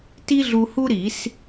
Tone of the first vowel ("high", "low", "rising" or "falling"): high